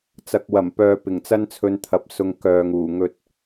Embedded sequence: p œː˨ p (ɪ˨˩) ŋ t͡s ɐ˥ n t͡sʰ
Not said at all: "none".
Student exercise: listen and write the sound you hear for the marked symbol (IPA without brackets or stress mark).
ɪ˨˩